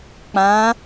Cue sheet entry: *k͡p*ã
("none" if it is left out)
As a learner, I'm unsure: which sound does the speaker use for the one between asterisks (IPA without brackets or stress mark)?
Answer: k͡p